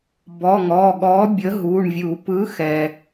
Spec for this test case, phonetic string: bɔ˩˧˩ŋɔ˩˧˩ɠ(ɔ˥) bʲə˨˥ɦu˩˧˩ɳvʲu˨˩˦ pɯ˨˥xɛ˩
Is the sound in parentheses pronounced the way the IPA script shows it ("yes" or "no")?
no